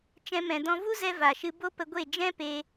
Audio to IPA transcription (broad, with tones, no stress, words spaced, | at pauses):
t͡ʃɛ̃˧mɛ̃˨dɔ̃˧ vu˦zɛ˧ va˨ʃɨ˧ bo˦pə˧ ɡʷe˦˨ d͡ʒɛ̃˦ pe˦